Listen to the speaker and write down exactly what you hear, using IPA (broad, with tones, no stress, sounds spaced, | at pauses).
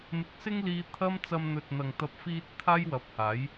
m ɪ˨˥ k̚ s ɪ˥ ŋ l iː˧ t̪ʰ ɐ˥ m t͡s ɐ˧ m n̪ ɵ˨ t̚ n̪ ɐ˨ ŋ t̪ ɐ˧ p̚ f iː˧ t̚ t̪ʰ aː˥ j w ɐ˨˥ p̚ h aː˨˥ j